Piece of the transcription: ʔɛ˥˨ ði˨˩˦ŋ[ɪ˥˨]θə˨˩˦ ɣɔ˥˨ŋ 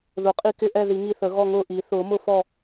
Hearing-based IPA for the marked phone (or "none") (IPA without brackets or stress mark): i˥˨